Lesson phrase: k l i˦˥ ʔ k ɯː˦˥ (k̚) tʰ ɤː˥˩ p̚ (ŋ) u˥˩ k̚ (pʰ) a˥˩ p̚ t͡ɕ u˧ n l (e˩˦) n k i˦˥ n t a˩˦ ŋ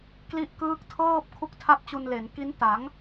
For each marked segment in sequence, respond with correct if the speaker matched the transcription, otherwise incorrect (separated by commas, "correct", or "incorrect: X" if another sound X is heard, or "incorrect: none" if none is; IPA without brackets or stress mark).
correct, incorrect: kʰ, incorrect: tʰ, correct